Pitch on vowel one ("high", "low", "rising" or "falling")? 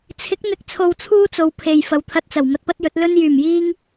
rising